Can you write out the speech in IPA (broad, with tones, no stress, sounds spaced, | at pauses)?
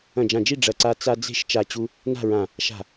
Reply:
ɐ̃˧˩ d͡ʒ ã˧˩ d͡ʒ i˥˨ ɖ͡ʐ ɐ˧˩ ǀ a˧ t͡s a˧ d͡z e̤˥˨ ʃ t͡ʃ a˧˩ t͡ɕ u˧ | n a̤˥˨ ɹ ã˧˩ | ʃ a̤˧˩